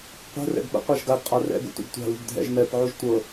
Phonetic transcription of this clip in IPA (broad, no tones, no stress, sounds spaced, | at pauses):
qʷ ɛ̤ r ɛ̰ ɡ ɓ ə̰ qʷ a ʒ ɡ a ɡ qʼ a r ɛ̰ ɡ ṵ tʷ ḭ ɡ tʷ a̤ l ṳ ɡ dʱ ɛ̰ ʒ m ɛ p ʕ u ʒ tʷ ɤ